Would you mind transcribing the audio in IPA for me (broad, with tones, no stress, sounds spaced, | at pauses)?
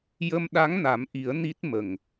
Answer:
j ə˧ m ɗ a˧˥ ŋ n a˨˩˦ m ʔ i˨˩˦ ə̯ n i˦˥ t̚ m ə˨˩ ŋ